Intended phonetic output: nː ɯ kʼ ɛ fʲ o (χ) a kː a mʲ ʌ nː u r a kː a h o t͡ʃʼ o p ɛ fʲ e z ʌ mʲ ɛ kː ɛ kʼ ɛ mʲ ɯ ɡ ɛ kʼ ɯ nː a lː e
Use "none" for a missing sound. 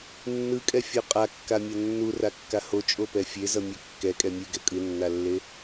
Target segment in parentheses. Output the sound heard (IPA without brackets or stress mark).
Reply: qʼ